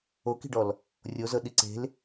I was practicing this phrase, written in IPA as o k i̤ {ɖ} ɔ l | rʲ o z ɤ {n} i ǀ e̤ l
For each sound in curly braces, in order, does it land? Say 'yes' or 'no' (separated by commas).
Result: yes, no